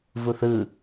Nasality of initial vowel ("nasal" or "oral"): oral